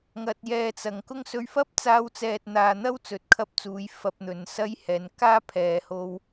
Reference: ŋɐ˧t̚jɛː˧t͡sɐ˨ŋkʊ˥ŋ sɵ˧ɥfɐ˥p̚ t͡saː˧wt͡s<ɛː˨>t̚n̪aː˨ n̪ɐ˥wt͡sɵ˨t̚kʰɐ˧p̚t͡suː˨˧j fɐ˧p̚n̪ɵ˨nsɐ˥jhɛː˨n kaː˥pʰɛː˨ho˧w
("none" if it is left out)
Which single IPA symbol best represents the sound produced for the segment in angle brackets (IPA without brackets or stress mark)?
ɛː˨